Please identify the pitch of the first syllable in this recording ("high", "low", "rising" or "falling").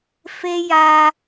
high